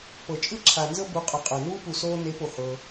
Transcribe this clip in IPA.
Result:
p ɤ˨ t͡ʃʼ ɯ˦ ǁʰ a˨ n z ɤ˦ b u˨˦ qʼ ɤ˨ qʼ ɤ˨ n uː˦ p u˨ s oː˧ n e˨˦ p o˨ h ɤ˧

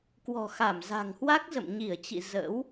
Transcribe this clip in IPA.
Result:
k w ɔ̤˨˩ x a˧˩ m z a̤˨˩ ŋ h w a˦˥ k̚ z ə̰˧˨ m ɲ i˧˩ ə̯ t͡ɕ ḭ˧˨ z ə̰ː˧˥ w

